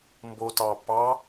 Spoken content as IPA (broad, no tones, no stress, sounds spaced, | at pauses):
m b o t ɑ p ɑ